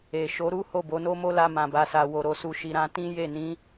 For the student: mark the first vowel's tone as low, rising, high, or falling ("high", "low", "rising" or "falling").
low